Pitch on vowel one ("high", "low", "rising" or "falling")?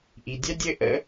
low